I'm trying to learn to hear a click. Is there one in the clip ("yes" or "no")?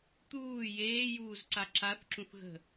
yes